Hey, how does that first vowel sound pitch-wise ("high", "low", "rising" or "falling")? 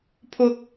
high